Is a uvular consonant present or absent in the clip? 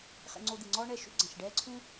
present